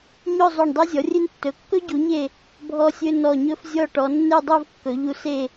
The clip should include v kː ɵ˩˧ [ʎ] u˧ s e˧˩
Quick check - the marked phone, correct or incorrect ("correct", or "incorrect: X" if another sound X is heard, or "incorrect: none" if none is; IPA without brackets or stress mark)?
correct